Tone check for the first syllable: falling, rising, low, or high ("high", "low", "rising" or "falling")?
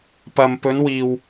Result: low